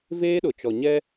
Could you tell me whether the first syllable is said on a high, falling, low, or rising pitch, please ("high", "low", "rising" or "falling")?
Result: high